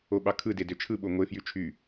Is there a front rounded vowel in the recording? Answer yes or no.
yes